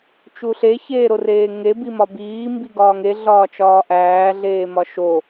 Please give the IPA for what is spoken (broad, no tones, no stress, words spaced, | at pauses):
t͡ʃuɬe çeːɾoreːŋe bimɒbiː mbiɡɒːŋe ɮɒːt͡ʃɒːʔæː ɮeːmɒʃo